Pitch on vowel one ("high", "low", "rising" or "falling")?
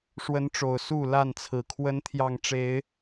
rising